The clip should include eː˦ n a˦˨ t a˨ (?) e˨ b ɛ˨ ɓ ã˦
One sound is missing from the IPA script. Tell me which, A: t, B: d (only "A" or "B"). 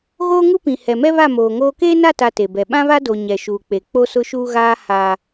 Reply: A